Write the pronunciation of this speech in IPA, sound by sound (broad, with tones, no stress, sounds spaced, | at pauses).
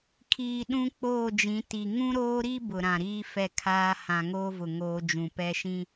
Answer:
kʰ iː˨ ɗ ũ˦ k͡p oː˦˨ d͡ʒ ĩ˨˦ t i˨ ŋ ũ˦ ɾ oː˦ ɾ i˦ b ʊ˨ ɾ ã˨ ɾ iː˦ f ɛ˦˨ kʰ aː˦ h ã˨ ŋ oː˦ v ʊ˨ ŋ oː˦ d͡ʒ ũ˨ p ɛ˦ ʃ ĩ˦